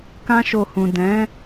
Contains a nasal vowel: yes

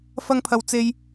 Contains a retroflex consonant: no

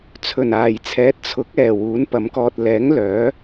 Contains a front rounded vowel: yes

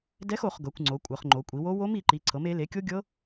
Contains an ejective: yes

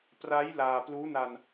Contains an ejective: no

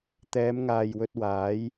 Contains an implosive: no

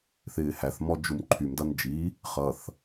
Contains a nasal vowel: no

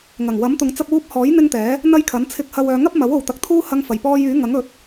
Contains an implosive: no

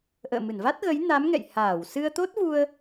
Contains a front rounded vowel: no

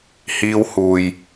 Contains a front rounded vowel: no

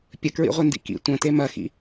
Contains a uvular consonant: yes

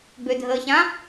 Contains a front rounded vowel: yes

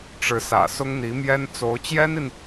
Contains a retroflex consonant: yes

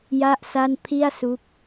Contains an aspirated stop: yes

